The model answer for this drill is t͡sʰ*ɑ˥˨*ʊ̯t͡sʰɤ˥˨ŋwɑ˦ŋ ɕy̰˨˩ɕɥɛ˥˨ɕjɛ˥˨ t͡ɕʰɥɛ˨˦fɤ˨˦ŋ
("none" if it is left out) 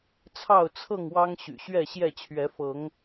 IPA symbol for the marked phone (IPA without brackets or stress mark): ɑ˥˨